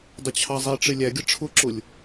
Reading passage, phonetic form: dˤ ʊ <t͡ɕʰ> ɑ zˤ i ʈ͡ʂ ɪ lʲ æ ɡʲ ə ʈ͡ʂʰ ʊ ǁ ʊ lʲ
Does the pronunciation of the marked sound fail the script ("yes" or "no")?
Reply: no